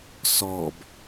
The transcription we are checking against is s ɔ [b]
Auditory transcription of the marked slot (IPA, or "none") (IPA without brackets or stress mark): b